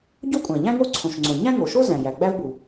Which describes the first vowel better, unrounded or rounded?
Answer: rounded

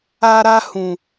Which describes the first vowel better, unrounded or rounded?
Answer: unrounded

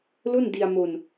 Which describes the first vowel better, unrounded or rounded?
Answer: rounded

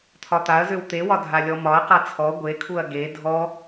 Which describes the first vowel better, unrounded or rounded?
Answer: rounded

